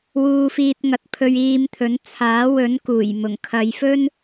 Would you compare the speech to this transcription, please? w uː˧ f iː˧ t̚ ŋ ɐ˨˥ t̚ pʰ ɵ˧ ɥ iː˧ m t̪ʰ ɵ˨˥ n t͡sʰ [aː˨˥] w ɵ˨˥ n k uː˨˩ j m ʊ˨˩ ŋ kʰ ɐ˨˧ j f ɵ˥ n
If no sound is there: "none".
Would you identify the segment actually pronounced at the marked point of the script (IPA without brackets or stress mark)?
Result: aː˨˥